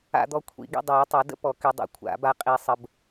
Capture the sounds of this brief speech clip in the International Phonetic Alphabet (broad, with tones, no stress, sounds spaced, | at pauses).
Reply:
a̰˧ d̪ ɔ˧ kʷʰ ḭ˨˩˦ ɡ ḭ˧ dˤ o˨˩˦ tˤ ə˨˩˦ d ə̰˦˥ p ɔ˨˩˦ k y˨˩˦ dˤ o̰˨˩˦ kʷʰ a̰˨˩˦ b a˧ qʼ i˨˩˦ sˤ ə˨˩˦ b